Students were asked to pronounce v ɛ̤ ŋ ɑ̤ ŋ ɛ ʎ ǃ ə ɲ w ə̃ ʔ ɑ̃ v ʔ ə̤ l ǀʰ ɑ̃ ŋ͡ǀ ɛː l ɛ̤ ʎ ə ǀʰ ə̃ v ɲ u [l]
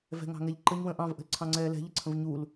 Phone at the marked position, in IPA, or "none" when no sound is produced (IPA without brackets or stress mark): l